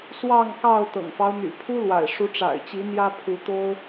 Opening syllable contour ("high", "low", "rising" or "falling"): falling